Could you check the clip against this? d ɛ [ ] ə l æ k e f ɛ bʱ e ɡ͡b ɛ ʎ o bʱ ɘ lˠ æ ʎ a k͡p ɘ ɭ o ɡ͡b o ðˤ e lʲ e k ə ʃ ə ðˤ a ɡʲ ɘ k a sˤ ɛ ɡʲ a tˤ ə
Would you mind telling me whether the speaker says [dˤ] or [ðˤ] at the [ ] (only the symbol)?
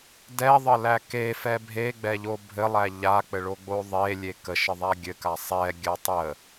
ðˤ